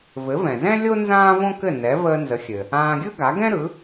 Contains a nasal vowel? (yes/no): yes